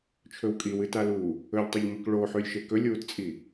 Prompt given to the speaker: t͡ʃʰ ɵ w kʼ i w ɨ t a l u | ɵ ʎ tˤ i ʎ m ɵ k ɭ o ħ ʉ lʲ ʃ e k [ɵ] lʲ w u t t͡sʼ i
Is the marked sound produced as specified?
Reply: yes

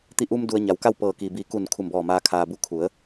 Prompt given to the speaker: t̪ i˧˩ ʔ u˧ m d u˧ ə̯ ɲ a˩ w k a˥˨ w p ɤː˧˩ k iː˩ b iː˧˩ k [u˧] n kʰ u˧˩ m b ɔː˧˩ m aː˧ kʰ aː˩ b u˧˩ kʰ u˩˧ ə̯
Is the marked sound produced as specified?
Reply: no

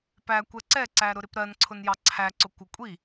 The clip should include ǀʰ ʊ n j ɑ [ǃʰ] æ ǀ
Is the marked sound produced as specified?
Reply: no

